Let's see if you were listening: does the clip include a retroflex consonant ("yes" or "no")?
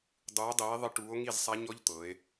yes